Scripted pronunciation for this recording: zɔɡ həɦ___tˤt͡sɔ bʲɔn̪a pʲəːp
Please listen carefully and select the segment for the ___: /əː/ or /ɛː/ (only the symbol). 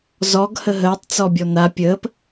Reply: əː